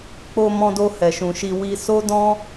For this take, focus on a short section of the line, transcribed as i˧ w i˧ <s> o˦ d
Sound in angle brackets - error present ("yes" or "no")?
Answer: no